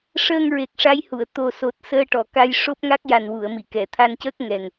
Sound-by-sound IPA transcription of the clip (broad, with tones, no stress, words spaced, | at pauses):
ʂəː˧ŋɹe˨˩k̚ ʂa˧˥jhu˨˩˨ə̯ t̪o˨˩so˨˩t̚ səː˧ʈɔ˨˩˨ ka˧jʂo˦˥p̚ŋa˦˥k̚ ja˨˩nwu˨˩˨ə̯mi˨˩˨ kɛ˨˩˨t̪ʰa˧ncəː˦˥k̚ ŋɛ˨˩ŋ